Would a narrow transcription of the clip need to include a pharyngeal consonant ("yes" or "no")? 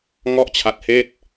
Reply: no